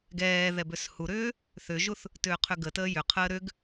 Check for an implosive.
absent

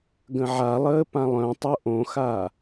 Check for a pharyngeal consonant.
present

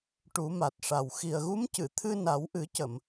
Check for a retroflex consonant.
present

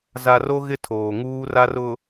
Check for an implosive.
absent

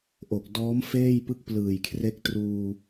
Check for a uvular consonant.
absent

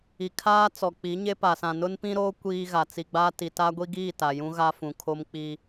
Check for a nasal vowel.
present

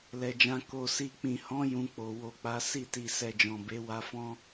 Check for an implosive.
absent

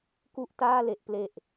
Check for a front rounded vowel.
absent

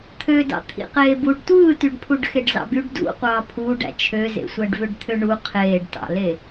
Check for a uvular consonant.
present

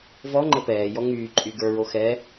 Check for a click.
present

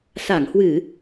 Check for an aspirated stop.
absent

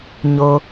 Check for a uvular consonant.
absent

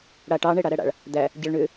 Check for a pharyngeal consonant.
absent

